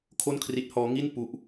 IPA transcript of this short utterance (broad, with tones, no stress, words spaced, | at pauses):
kʰo˥˩nkʰri˦˥t̚hɔː˦˥ ŋi˥˩npu˦˥ʔ